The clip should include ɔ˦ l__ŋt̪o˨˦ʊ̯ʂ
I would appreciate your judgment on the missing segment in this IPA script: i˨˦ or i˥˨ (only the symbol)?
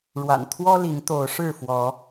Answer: i˨˦